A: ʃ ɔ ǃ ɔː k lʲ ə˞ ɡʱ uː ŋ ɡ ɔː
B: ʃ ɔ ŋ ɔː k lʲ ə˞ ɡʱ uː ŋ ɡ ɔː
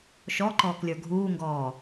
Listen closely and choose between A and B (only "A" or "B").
A